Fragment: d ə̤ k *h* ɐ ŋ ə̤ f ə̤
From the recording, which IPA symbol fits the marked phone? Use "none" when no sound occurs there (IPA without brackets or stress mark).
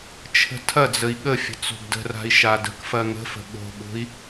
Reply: f